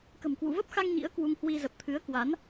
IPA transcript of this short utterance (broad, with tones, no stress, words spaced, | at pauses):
kə̤˨˩mkwṵ˧˨və˦˥p̚xa˧ŋ ɲḭ˧˥ə̯ kwu˧ŋhwi˧ zə˨˩p̚t̪ʰɨ˨˦ə̯kwa˨˦n